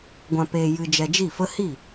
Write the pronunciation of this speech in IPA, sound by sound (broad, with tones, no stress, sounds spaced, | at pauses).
ɡʷ ã˧ p eː˧ j ɨ˧ d͡ʒ ɛ˧ d͡ʒ i˦˨ f ə˦ h i˦˨